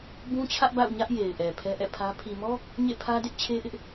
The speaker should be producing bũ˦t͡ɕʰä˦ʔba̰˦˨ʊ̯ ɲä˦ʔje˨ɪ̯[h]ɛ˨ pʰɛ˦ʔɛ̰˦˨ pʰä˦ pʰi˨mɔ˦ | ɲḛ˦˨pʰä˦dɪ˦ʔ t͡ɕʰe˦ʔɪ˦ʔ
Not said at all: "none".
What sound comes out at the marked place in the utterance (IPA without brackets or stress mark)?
ʔ